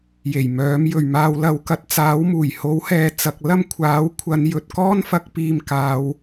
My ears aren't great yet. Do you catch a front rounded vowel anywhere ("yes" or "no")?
yes